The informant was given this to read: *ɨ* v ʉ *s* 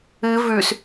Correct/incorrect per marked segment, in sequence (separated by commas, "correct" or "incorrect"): correct, correct